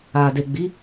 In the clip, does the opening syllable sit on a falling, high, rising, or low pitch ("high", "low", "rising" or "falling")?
low